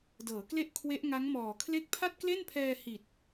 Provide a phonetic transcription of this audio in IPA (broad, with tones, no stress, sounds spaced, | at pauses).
d ɤː˩˦ k l e˥˩ ʔ kʰ w e˦˥ ʔ ŋ a˦˥ ŋ m ɔː˨˩ kʰ l e˥˩ k̚ pʰ a˥˩ t̚ k l e˥˩ n pʰ ɛː˧ h i˨˩ t̚